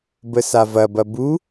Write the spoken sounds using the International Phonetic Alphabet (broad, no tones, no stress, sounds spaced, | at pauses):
b ə s a v ɐ b ɐ b u